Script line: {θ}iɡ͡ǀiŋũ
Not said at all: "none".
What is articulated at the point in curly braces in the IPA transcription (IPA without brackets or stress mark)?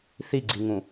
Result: θ